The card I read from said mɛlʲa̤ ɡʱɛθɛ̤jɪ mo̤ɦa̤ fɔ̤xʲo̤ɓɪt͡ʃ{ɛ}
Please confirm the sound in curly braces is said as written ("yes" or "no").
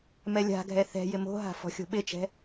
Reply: no